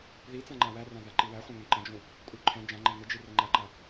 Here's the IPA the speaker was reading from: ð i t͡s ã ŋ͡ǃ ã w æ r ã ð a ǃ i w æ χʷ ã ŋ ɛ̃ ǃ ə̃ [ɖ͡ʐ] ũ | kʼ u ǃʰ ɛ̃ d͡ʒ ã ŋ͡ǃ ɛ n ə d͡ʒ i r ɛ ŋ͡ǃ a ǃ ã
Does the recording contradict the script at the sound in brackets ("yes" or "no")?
yes